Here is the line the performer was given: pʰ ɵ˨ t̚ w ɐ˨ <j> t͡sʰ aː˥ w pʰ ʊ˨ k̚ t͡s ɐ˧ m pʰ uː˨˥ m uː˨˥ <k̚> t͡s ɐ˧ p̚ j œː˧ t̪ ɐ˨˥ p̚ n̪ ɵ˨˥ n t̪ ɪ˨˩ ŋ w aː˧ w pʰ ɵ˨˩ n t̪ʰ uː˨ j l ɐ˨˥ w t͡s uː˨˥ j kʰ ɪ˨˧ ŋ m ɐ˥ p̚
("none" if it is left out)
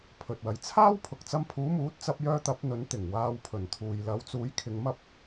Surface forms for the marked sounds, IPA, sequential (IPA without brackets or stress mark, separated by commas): j, t̚